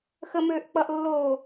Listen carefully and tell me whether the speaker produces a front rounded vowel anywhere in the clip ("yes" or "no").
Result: yes